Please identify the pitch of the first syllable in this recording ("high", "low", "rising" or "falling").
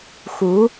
rising